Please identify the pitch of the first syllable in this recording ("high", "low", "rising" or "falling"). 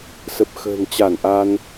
low